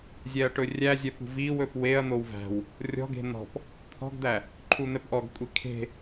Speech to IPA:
zʲ ɛ ɐ̯ ʈ ɵ rʲ æ zʲ œ p ṳ v i w ɵ p w e ɐ̯ n̪ o w v æ̤ w | rʲ ɔ̤ ɡ e̤ n̪ ɔ̤ p | t̪ʰ ɔ̤ ɡ d̪ æ | ǃʰ u n̪ ɛ p ʔ ɔ ɡ kʷʼ i kʰ e̤

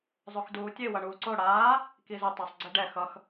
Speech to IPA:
zˤ o x d uː tʲ e w ʌ ɳ uː ǀ o ɽ aː | k i z u tˤ ʌ sˤ ɡ͡ǀ e ɖ ɛ x ʌ x

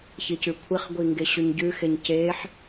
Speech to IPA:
ç i c ʉ kʷʰ i χ ɡʷ i ŋ ɡ e ɕ ʉ ɲ ɟ ʉ x e ɲ c e ħ

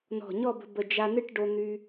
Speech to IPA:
n ɔ̤˧˩ ɲ ɔ˥˧ b ə̤˧ b ə˧˩ d͡ʒ a˧ n ɨ˥˧ ʈ ɖ o˧ n̪ y˧

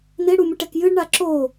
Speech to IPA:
n e ɽ u mʲ ɨ ʈ ɛ k j ɨ ɖ ɳ a ǁ o

